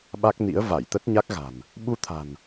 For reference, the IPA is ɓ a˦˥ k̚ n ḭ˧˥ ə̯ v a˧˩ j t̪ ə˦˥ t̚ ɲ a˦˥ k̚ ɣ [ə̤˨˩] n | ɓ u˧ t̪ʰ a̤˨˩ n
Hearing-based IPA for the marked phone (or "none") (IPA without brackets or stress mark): a̤˨˩